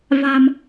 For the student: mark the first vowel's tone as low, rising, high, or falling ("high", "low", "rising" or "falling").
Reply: low